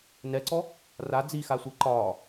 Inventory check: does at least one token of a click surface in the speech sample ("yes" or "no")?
yes